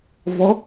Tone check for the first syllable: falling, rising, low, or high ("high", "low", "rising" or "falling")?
rising